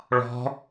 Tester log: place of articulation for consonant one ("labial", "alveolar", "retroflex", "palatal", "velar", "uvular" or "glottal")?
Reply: retroflex